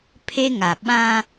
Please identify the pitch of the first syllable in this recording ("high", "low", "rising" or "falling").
high